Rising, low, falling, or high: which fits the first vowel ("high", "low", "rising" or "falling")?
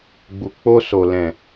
low